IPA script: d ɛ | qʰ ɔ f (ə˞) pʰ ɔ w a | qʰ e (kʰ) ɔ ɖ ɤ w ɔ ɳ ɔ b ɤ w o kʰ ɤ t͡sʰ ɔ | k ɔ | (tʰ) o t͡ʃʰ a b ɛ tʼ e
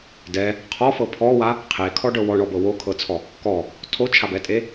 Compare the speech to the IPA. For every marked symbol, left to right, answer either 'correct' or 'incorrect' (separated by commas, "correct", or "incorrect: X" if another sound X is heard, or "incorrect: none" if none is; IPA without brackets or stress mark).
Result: incorrect: ɤ, correct, correct